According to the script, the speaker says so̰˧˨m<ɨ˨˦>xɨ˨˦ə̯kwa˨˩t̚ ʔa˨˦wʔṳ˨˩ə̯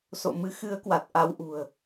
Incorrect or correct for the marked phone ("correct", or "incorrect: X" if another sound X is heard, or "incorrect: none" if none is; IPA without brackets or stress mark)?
correct